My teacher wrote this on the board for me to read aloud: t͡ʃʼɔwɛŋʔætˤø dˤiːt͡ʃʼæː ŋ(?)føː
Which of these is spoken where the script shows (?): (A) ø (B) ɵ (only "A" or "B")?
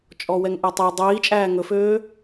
B